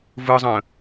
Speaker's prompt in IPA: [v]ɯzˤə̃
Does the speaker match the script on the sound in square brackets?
yes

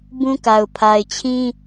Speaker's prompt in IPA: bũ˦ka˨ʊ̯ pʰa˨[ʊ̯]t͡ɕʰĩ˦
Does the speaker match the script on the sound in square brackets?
no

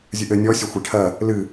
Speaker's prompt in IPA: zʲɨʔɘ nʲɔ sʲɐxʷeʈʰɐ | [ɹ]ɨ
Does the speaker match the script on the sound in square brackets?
no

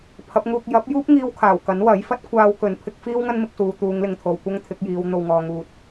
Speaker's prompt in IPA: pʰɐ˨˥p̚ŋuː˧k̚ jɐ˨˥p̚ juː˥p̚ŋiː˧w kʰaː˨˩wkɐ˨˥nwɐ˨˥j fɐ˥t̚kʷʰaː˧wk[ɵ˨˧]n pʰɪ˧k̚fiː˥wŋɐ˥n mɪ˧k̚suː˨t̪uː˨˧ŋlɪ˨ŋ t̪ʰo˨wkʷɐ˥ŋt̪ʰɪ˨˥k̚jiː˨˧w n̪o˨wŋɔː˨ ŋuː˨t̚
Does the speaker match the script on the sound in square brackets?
yes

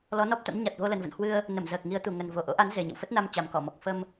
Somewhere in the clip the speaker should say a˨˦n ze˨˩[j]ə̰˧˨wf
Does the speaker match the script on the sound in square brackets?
no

